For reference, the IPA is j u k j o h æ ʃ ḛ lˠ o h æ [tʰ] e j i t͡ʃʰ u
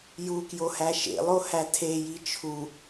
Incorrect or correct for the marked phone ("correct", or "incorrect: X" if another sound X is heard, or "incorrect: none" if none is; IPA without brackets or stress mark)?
correct